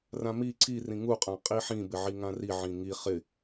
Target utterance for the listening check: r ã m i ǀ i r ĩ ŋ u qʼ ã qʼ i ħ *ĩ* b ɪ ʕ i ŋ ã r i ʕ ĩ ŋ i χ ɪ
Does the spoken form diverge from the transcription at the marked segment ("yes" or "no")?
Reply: no